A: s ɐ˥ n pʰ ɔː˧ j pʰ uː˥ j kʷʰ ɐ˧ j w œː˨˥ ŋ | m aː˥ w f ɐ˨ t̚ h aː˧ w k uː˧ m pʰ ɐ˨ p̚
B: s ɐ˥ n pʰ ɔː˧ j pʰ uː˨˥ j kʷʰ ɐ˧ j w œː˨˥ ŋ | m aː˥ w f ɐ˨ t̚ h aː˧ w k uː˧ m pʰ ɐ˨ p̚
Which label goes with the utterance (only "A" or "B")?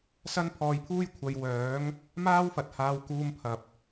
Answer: A